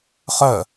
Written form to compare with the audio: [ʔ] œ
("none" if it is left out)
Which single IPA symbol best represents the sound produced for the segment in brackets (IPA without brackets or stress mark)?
χ